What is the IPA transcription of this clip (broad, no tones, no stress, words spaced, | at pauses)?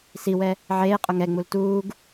siwɛ | ʕeːqʼʊ ŋɛŋ͡mul tuːɡ